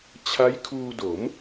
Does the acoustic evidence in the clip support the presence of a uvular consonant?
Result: no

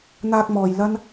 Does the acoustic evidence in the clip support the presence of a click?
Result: no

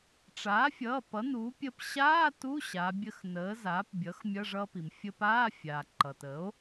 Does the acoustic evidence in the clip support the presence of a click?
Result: yes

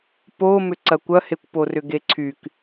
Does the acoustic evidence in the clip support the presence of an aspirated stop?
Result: yes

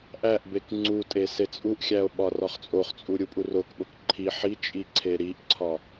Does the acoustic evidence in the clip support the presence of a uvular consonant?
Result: yes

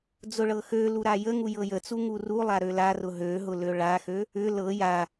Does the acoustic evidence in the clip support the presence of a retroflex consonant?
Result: yes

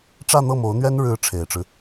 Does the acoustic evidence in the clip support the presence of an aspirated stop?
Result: yes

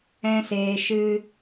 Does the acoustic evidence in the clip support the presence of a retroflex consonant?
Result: no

